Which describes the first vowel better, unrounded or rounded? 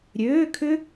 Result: rounded